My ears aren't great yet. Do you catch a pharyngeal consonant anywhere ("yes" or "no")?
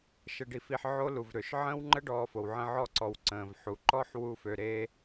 yes